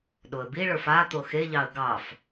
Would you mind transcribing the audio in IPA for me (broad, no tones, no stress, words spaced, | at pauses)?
ɗoə̯biɭə˞f at̪o xeʎɑə̯ ɡɑf